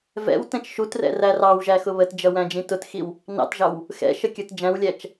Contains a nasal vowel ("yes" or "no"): yes